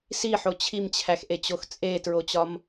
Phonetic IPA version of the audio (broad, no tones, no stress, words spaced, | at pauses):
siħo t͡ɕʰimt͡ɕʰæxʔet͡ɕox t͡sʼetɹot͡ɕɒm